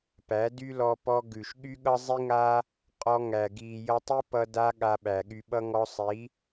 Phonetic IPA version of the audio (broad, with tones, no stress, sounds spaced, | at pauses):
p æ˨˦ d y˦ l ɔ˧ p ɔ˧ ɡ ʉ˨ ʃ ɠ y˦ ɠ ʌ˦ zˤ i˦ ŋ a˦ | qʼ ɔ˧ ŋ æ˨ ɡ i˨ j ʌ˧ tˤ i˦ p ʌ˦ d a˦ ɠ a˧ ɓ æ˨ ɠ y˧ ɓ ʌ˦ ŋ ɔ˧ sˤ i˨˦